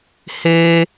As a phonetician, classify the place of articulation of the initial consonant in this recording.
glottal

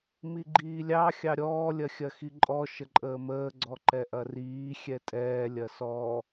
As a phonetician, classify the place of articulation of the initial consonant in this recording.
labial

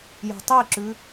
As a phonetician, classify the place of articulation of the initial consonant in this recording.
palatal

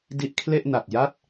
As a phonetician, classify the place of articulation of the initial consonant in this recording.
alveolar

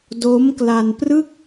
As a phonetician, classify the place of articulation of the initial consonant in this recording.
alveolar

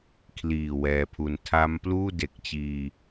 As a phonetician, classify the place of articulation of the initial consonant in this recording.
velar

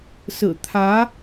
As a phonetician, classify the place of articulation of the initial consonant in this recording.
alveolar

